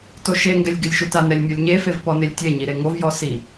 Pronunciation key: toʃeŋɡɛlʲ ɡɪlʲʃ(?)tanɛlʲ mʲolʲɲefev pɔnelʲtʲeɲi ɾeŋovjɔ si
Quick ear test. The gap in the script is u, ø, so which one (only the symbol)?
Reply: u